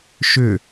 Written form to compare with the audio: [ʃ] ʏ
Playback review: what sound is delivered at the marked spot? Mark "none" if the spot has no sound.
ʃ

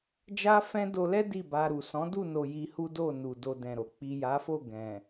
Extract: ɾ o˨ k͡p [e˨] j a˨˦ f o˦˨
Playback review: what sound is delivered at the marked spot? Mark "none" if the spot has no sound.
i˨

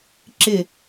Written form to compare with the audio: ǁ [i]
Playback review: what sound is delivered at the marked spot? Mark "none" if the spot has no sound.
ɪ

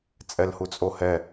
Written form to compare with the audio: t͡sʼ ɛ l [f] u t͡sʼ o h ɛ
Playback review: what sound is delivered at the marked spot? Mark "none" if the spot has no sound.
h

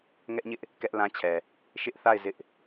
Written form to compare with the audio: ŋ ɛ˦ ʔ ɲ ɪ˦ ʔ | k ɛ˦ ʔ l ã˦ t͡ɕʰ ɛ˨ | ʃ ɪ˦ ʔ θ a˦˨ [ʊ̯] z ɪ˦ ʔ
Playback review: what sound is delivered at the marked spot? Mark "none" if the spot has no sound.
ɪ̯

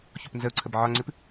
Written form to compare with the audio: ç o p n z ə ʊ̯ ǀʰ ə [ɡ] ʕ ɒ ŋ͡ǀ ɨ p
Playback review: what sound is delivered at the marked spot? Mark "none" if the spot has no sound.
b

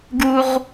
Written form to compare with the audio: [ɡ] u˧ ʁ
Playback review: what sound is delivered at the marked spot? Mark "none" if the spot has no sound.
ɡ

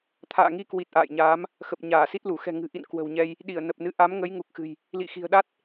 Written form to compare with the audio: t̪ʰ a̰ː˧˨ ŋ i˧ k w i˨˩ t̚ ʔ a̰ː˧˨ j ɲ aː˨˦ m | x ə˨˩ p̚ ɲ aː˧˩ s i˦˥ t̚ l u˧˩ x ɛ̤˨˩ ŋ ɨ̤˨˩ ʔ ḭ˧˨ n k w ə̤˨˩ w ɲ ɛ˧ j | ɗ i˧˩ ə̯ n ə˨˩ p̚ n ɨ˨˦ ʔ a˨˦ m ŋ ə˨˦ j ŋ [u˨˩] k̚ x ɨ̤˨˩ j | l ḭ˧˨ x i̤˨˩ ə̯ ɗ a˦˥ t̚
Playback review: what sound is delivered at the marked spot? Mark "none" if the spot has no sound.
u˨˩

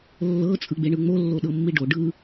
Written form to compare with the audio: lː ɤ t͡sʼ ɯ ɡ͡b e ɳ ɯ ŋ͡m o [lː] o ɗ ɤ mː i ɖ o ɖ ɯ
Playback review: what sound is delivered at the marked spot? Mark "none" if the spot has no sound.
lː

